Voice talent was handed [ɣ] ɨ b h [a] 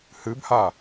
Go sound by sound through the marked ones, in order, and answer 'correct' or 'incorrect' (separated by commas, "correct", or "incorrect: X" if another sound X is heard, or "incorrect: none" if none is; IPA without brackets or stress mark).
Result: incorrect: h, correct